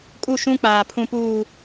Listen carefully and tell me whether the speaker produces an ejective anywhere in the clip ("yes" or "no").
yes